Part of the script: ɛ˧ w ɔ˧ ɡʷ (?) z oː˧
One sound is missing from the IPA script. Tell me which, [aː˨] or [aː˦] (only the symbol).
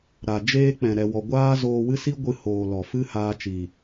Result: aː˦